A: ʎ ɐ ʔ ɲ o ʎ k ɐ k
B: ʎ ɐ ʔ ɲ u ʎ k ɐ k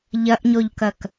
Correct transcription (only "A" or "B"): A